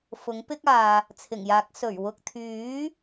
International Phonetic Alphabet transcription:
f ʊ˨˥ ŋ p ɪ˥ k̚ aː˨ | t͡sʰ ɪ˨˩ ŋ j aː˨˥ k̚ s ɵ˨˩ ɥ w ʊ˨ k̚ t̪ʰ yː˨˥

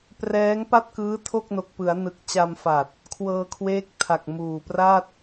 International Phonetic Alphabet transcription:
p r ɛː˦˥ ŋ p a˥˩ t̚ k ɯː˦˥ tʰ o˥˩ k̚ n o˨˩ k̚ p ɯ˩˦ a̯ n ɯ˨˩ k̚ t͡ɕ a˧ m f a˨˩ t̚ | kʰ w ɤː˧ kʰ w eː˦˥ k̚ tʰ a˨˩ k̚ m uː˨˩ p r a˥˩ t̚

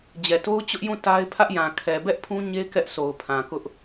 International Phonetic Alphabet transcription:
d͡ʑ ɛ˨ t o˦ ʊ̯ t͡ɕ ʊ˦ ʔ j ũ˦˨ t a˦ ɪ̯ pʰ ä˦ ʔ j ã˨ kʰ ɛ˨ b ɛ˦ ʔ pʰ ũ˦ ɲ e˦ k ɛ˦ ʔ s o˨ ʊ̯ pʰ ã˨ k ʊ˦ ʔ

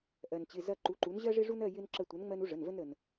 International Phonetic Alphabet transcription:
ʔ ɜ˩ n t͡ɕ ɪ˩˧˩ z ɐ˦˨ ǃ u˩˧ ǃ u˩˧ n ʑ ɜ˦ ʐ ɪ˦ ʐ u˦ n ɜ˦˨ j ɪ˦ n ǁ ə˦˨ tʷ ɐ˨˥ n ŋ͡m ɜ˦ n u˦ ʐ ə˩˧˩ n v ə˦ n ɾ ə˩ n

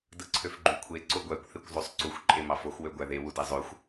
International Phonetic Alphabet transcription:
d ɯ ǀʰ ø f ɡ͡ǃ y kʷʰ e ǀ o ɡʷ æ kʷ θ e kʷ zˤ o sˤ ǀ u xʷ ǃʼ e m ɑ f o x w ø ɡʷ æ ð e w u d e zˤ ø xʷ

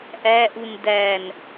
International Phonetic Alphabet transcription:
ʔ æ ʔ u n d æ n

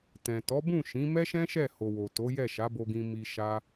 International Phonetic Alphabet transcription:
t ɛ̃˨ t ɔ˨˦ b ũ˦˨ ʃ ĩ˨˦ m ɛ˦ ʃ ɛ̃˦ ʃ ɛ˦˨ h o˨ w o˨ t o˨˦ j ɛ˦˨ ʃ a˨˦ b o˧ ɡ ĩ˧ m i˧ ʃ a˦

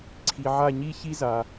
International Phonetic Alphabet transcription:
ǀʰ i˨ ʕ a˦˨ ɲ i˥ ç i˥ z a˨

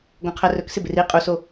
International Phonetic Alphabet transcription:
ɡ õ qʰ ɜ r ɵ k s ɪ b ɪ r i qʼ u s o

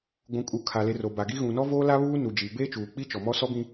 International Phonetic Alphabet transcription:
ɡʷ ũ˨ kʼ u˨ kʰ a˨ l e˨ r o˨ b a˨ ɡ i˦ ɣ ũ˨ n ɔ˦ v oː˦ l a˦ β uː˦ n u˨ d͡ʒ i˨ b eː˦ t͡ʃ uː˨ k͡p i˦ t͡ʃ ɔ˨ m ɔ˦ s ɔ˦ b ĩ˦

